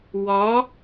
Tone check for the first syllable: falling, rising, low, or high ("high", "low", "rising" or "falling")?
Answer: rising